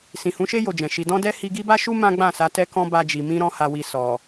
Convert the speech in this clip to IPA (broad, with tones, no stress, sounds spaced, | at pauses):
s ĩ˨ h ũ˨˦ ʃ e˦ j o˧ d͡ʒ ɛ̃˨ ʃ i˧ d ɔ̃˦ d ɛ˦ h i˧ ɡ i˦ b a˦ ʃ u˦ m ã˦ ɡ͡b ã˦˨ s a˨˦ t ɛ˧ k ɔ̃˧ b a˧ d͡ʒ i˨ m ĩ˧ ɾ ɔ̃˧ h a˨ w i˨ s ɔ˨